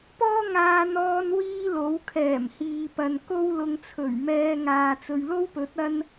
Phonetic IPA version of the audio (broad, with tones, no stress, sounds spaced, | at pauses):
p ɔː˥ ŋ aː˧ n̪ ɔː˧ n w iː˥ l o˨˥ w kʰ ɛː˨˩ m h iː˨ p ɐ˨ n k o˥ w l ʊ˧ ŋ t͡sʰ ɵ˨˩ ɥ m ɛː˧ ŋ aː˨ t͡s ɵ˨ ɥ l o˥ w p ɵ˨˥ t̚ ɐ˥ n